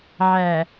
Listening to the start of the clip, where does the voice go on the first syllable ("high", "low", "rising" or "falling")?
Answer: low